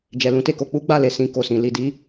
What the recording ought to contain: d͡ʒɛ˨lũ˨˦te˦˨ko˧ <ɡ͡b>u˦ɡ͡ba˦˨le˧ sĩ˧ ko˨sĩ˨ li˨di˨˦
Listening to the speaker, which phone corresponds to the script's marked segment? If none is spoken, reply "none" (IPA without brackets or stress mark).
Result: k͡p